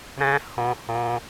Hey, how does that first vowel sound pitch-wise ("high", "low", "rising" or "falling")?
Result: high